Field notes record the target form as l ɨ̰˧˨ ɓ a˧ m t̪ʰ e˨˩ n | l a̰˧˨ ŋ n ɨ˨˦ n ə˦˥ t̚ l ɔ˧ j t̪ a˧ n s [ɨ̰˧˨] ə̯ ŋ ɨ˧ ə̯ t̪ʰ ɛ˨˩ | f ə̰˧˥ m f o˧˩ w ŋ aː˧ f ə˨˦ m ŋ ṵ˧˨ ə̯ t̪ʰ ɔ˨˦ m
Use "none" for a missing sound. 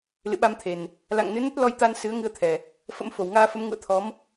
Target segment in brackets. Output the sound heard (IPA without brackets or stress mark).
ɨ˨˦